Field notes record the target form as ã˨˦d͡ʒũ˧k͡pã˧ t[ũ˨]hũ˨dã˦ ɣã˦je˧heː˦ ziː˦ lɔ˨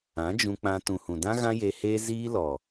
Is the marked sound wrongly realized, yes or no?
no